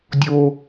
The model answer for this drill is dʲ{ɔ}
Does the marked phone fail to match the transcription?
yes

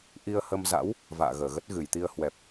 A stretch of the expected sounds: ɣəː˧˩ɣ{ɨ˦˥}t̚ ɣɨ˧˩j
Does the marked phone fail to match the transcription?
yes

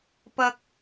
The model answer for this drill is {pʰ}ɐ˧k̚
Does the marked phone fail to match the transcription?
yes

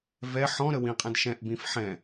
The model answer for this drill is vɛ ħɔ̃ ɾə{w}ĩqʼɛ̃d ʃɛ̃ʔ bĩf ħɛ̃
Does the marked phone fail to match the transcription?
no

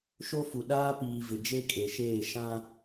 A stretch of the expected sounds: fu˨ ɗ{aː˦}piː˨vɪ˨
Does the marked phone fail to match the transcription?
no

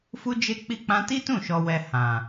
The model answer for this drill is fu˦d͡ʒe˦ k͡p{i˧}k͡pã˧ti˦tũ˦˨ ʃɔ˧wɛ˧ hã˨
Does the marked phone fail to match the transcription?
no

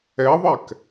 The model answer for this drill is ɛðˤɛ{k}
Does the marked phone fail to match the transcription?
no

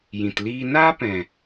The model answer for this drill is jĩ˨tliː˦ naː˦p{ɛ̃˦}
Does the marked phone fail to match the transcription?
yes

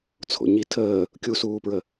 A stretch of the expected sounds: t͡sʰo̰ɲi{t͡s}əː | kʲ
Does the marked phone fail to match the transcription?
yes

